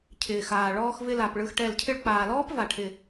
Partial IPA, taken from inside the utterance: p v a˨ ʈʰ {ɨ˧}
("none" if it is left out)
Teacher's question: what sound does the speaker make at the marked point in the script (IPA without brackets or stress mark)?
ɪ˧